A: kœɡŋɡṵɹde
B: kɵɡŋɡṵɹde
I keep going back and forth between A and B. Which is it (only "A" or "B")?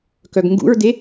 A